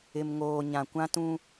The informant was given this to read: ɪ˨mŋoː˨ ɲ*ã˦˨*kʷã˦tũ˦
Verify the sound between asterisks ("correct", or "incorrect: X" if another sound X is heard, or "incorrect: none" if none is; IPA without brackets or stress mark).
incorrect: ã˨